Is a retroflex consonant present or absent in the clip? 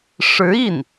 present